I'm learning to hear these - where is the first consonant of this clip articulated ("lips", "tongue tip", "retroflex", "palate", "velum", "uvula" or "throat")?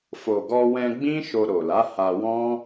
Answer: lips